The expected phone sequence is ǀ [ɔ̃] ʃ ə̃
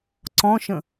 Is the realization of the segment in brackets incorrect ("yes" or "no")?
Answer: no